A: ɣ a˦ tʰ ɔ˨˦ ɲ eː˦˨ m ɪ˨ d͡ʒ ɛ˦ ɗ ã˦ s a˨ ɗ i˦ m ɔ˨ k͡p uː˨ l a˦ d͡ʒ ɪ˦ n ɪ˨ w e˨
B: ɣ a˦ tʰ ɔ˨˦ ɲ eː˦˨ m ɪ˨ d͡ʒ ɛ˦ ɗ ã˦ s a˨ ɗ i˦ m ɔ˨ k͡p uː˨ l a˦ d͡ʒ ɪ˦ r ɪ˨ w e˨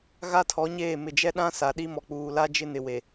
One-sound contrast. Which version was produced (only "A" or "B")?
A